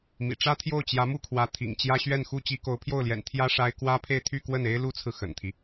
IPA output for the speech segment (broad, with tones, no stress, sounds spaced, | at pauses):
m ḭ˨˩ ʈ͡ʂ ä˥ t̪ʰ j o˥˩ ʊ̯ t͡ɕ j ä˧˥ m u˥˩ kʰ w ä˧˥ t̪ʰ ḭ˨˩ ŋ t͡ɕ j ä˥ ɕ ɥ ɛ˥˩ n x u˥ t͡ɕ i˧˥ k o˧˥ ʊ̯ pʰ j o˥˩ ʊ̯ l j ɛ̰˨˩ n t̪ʰ j ä˥ ʂ a˥ ɪ̯ k w ä˥ pʰ e˥˧ ɪ̯ t̪ʰ y˥˧ k w ə˥˩ n e˥ ɪ̯ l u˥ t͡sʰ ɹ̩˨ x ə̰˨˩ n t̪ʰ i˦